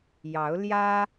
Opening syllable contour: rising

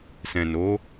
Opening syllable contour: low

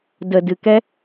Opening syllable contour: low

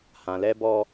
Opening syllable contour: low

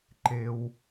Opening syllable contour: low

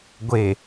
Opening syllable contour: low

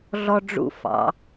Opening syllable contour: high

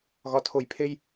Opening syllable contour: low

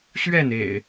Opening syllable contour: falling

